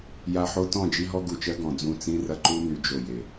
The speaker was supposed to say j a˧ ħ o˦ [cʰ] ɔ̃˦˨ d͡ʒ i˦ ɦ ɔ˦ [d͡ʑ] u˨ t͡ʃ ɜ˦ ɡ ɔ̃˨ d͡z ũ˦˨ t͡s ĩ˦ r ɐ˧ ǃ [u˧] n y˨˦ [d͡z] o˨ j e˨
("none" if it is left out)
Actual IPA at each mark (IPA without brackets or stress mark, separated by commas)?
t, ɡ, u˦, d͡ʒ